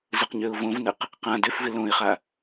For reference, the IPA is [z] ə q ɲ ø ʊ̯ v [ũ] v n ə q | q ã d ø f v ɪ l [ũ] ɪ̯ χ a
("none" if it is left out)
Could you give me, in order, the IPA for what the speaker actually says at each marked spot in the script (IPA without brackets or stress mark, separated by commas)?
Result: z, õ, õ